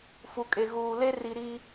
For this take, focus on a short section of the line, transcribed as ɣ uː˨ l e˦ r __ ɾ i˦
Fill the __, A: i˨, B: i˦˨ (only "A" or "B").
A